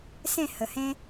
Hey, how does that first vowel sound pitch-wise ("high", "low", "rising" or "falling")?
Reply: falling